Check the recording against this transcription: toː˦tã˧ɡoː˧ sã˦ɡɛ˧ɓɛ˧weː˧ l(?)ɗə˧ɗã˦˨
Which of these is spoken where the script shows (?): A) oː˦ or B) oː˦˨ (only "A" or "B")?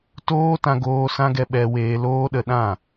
A